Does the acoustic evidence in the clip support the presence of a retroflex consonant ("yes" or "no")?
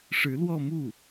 yes